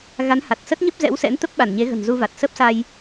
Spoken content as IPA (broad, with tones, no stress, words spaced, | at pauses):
ɣa˨˦nha˨˩t̚sə˦˥t̚ ɲə˦˥p̚ zɛ̰˧˥wsɛ̰˧˥nt̪ə˦˥p̚ ɓa˧˩nɲe˨˦ ɣə̤˨˩nzu˧va˨˩t̚ sə˦˥p̚sa˧j